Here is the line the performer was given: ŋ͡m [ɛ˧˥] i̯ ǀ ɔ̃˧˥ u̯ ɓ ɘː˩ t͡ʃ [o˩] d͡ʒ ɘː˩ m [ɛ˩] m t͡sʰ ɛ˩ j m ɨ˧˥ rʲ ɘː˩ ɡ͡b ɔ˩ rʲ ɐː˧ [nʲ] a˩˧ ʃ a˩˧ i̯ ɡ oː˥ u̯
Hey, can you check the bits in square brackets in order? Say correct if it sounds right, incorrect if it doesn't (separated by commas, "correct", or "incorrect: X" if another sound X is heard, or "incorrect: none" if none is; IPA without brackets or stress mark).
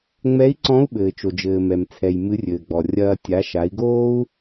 correct, correct, correct, incorrect: tʲ